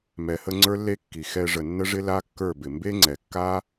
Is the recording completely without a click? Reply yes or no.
no